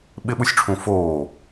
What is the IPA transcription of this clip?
ɓ ɪ ɓ u sʲ ʈ͡ʂʰ ũ f oː

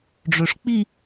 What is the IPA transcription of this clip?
ɖ͡ʐ ø ʂ k͡p i

